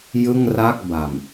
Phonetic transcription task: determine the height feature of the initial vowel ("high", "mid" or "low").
high